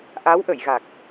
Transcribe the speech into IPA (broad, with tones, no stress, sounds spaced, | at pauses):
ʔ a˧˥ w ʔ ə˨˩˨ j ɣ a˨˩ k̚